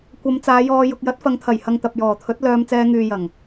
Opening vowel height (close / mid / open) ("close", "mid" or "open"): open